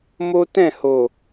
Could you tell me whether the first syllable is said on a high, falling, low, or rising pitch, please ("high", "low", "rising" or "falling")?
high